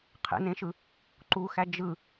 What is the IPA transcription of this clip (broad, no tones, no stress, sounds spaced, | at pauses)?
qʰ ḛ n ẽ ʃ ɯ | ǃ u x æ d͡ʒ ɯ